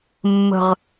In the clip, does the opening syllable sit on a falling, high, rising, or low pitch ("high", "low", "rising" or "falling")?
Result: falling